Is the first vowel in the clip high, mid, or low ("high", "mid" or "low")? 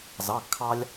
low